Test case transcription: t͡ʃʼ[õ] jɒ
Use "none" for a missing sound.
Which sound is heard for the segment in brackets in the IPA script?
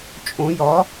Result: õ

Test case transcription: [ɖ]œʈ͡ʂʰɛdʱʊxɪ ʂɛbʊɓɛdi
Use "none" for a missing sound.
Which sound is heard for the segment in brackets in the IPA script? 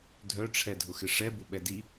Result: dʱ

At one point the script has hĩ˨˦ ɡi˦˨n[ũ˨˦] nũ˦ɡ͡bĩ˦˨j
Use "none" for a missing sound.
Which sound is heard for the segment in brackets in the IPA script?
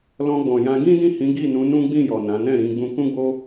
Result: ũ˨˦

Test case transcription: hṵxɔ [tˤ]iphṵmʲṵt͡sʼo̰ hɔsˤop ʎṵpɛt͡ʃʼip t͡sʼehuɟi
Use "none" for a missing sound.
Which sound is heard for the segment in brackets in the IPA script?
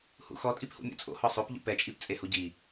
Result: tʼ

